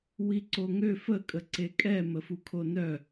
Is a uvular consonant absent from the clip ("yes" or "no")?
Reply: yes